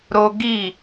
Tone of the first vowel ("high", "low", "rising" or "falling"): high